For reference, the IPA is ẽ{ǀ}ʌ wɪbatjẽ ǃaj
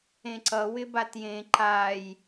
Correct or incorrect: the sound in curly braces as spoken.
correct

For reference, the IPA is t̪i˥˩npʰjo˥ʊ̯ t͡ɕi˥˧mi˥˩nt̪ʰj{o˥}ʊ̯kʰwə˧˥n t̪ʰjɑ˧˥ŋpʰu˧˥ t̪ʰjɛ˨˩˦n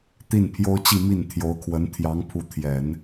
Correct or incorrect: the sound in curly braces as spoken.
incorrect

